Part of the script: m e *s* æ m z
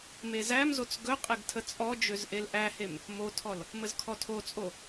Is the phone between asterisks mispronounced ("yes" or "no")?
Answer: yes